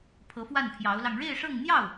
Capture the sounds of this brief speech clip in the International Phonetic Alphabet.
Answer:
pʰ ɤ˧˥ f w a˥˩ n pʰ j ɑ˧˥ ʊ̯ l ɑ˧ ŋ ɻ e˥˧ ɪ̯ ʂ ɤ˥˧ ŋ n̪ j ɑ˥˩ ʊ̯

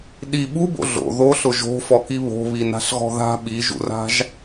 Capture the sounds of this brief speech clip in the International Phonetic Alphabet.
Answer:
ɗ i ɓ u b o̰ ɮ o̰ ð o ɬ ʊ ʒ o̤ f ɔ k i β o̤ β i n a̤ ɬ ɣ ɔ̤ ð a̤ ɓ i ʒ ṵ r a̤ ʒ

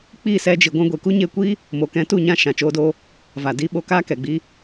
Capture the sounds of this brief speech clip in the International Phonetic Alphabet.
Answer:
k͡p iː˦˨ s ɛ˧ d͡ʒ i˨ ɡʷ ɛ̃˧ ɡʷ e˨ k u˦ ɲ eː˧ kʷ iː˦ | m o˨ k ɛ̃˧ t u˦˨ ɲ ã˧ ʃ ã˨ t͡ʃ oː˧ d oː˧ | v a˨ d iː˧ ɓ o˧ k aː˦ k ɛ˨ ɡ͡b iː˦

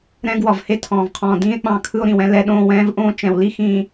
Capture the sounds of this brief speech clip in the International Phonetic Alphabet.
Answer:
ɾ ɛ̃˦ ɡ w ɒ˨ v h e˦ tʰ ɔ̃ː˨ v qʰ ɔ̃ː˨ d ĩː˦ e̯ k͡p ɑ̃˦˨ kʰ ɯ˦ o̯ ɾ ĩ˨ w ɛ̃˦ l ɛ˦ ɗ õː˦˨ w ɛ̃ː˦ v ʔ õː˦ t͡ʃ ɛ̃˨ w l i˦ x ĩː˨

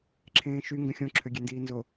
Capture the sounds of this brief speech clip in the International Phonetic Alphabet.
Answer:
ǁʰ ẽː ʃ y ŋ ɡ ə̃ xʲ õ ǁʰ ø ɡʲ e n d iː n z o

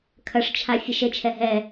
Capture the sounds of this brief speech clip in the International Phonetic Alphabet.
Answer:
kʰ ɐ ʂ t͡ʃʰ a fʲ ɛ ʃ ɘ t͡ʃʰ ɛ ɦ ɛ

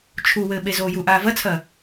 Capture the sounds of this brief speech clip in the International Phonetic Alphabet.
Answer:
t͡ʃʰ u w ɘː ɓ e z oː j u ʔ aː v ɐ t͡sʰ ɐː

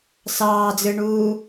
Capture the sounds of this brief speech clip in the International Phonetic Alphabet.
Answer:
s ɑː d͡z ɯ ɳ uː

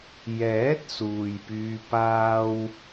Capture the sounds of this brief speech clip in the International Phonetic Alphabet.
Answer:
j ɛː˨˥ t̚ s uː˨ j p yː˧ p aː˥ w

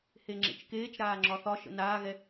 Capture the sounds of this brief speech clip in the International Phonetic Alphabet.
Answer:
h e ŋ͡ǁ ḛ t͡ʃ k eː t͡ʃ ɾ aː ŋ͡ǁ ɒ θ ɒ ʃ ə̰ n aː ɣ ɛ

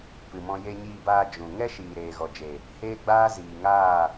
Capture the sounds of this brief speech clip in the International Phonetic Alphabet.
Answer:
p ɨ˨ m ɔ̃˧ j e˧ ɲ iː˧ b aː˧ d͡ʒ ũ˨ ŋ ɛ˦ ʃ iː˨ ɾ eː˨ ɣ ɔ˨ d͡ʒ e˨ | h eː˦ ɡ͡b aː˦ z iː˨ ŋ aː˦˨

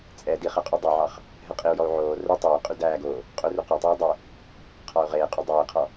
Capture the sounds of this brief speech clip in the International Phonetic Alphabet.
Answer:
t͡sʼ ɛ d i χ ɛ qʼ y dˤ œ ʕ ɑ χ | ɦ ɛ qʼ i u̯ j ɔ u̯ ʕ oː r ɵ tˤ ɵː i̯ qʼ y d æː ɡ oː | qʼ ɵ r y q ɑ tˤ oː dˤ ɵ | qʰ ɑ u̯ ʁ eː qʼ ɵ dˤ ɵː i̯ qʰ ɔ

